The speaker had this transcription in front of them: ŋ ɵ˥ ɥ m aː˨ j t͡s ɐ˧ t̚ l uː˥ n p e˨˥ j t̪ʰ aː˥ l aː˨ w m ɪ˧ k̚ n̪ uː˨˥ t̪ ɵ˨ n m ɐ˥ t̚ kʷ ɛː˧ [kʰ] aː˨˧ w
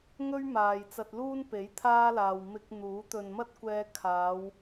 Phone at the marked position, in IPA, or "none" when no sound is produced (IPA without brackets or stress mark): kʰ